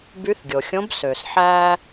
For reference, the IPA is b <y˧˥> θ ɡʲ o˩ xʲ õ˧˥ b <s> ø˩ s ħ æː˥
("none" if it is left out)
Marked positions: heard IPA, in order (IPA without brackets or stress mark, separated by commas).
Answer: y˧˥, s